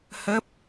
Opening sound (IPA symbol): h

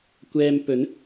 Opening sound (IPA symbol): kʷ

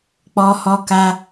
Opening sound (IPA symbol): k͡p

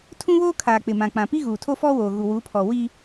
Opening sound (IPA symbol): tʰ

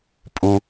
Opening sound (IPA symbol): pʼ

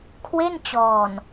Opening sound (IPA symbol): kʰ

